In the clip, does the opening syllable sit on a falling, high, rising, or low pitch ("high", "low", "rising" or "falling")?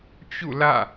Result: falling